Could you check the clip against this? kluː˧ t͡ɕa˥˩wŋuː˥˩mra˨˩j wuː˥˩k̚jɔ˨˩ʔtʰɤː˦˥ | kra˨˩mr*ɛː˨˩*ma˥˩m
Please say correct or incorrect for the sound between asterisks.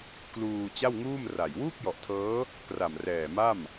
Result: correct